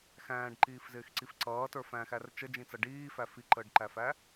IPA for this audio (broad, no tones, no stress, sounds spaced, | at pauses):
x æ̃ː ɖ ǃ iː f z ɪː x ǀ i f ǀ ʌː t ə˞ f æ̃ x æ r t͡ʃ ə d͡ʒ ĩ t͡s ʌ ɖ iː f æ f i ǃ əː ɖ ǃ æ f æ